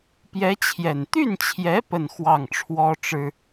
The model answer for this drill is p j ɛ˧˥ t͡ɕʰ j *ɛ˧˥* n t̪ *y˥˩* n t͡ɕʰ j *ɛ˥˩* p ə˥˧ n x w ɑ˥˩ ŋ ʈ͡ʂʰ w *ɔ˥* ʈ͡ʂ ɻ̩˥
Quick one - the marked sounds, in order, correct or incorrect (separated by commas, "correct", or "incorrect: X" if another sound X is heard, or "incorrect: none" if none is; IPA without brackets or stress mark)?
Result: incorrect: ɛ˨˩, correct, incorrect: ɛ˧˥, correct